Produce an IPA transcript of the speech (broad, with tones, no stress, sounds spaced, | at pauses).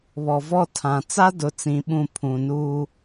β ɔ˨ v ɔ˦˨ tʰ ã˨ t͡s a˦ d ʊ˨ t͡s ĩ˨˦ ɓ ũ˦˨ pʰ ũ˨ n uː˦